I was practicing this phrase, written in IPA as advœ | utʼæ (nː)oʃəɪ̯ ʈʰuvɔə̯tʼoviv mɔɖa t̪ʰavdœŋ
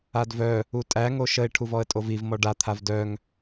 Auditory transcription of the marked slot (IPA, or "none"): ŋ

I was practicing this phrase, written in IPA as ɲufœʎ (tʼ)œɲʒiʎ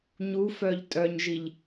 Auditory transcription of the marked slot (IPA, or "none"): tʼ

